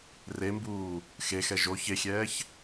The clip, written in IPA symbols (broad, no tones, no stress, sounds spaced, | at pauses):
r e m b uː | x e x ɛ ʒ o ç e xʲ ɛː ç